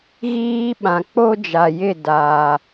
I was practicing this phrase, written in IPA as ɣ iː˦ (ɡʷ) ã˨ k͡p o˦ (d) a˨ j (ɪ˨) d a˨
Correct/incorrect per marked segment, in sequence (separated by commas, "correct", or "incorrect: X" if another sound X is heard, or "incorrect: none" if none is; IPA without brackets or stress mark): incorrect: ɓ, incorrect: d͡ʒ, incorrect: ɪ˦˨